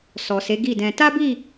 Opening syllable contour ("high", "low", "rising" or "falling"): low